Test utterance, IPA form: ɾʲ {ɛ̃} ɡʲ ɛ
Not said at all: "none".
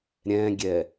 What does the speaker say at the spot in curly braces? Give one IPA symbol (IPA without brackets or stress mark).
ɛ̃